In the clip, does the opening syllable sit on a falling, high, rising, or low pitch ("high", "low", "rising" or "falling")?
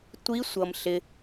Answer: rising